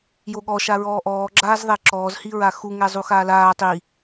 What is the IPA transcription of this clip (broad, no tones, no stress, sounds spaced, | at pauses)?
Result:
j o ɠ ɔ ʃ a ɹ ɔː ʔ ɔː ɡ͡ǁ aː z ðˤ ɛ ǁ ɔː z h i ɹ a x u ŋ ɛ zˤ u x aː l aː tˤ i